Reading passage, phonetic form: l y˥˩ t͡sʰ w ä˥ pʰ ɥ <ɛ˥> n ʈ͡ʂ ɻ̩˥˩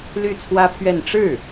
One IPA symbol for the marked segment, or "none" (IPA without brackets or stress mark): ɛ˥˧